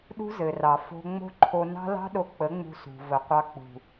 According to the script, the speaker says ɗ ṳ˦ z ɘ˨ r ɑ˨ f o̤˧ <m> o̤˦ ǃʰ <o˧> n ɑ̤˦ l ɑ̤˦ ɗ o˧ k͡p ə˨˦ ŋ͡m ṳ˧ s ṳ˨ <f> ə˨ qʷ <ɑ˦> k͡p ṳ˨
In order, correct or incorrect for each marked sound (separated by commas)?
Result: incorrect, correct, incorrect, incorrect